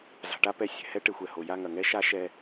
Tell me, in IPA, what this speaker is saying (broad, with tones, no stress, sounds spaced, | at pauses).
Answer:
z a̤˨ ʈ a˧ p ɛ˧ sʲ ɛ̤˨ h ɛ˦ ʈ e˨ xʷ ɛ˨ h o˨ j a˦˨ ŋ ɐ˨ ŋ ɛ˦ ʃ a˦ ʃ ɛ˧